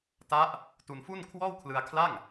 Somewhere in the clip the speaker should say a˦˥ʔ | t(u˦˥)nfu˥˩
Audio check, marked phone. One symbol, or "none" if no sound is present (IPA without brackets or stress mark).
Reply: u˧